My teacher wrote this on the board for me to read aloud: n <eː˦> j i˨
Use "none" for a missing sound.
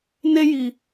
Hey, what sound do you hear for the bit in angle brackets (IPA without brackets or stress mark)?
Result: e˦